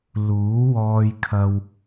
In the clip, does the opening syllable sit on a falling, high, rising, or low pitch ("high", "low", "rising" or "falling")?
rising